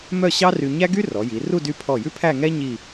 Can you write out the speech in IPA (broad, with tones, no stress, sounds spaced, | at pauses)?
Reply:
m œ˥˧ ɕ ɑ˥ r y˧ ɲ æ˥ ɡ y˥ r ɔ˩˧ j i˩˧ r u˥˧ d y˧ pʰ ɔ˧˩ j ʉ˥ pʰ æ˥˧ ŋ ɛ˥ ɲ i˥˧